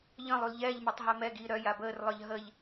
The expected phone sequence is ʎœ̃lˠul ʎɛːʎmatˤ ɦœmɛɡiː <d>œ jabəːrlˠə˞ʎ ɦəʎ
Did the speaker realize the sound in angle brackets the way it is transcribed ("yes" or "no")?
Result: no